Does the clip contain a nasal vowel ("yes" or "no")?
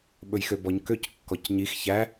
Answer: no